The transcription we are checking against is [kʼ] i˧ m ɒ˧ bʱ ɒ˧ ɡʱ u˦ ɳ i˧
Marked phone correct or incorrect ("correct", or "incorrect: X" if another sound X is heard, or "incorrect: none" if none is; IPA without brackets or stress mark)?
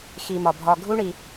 incorrect: x